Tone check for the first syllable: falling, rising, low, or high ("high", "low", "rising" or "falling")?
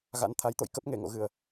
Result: rising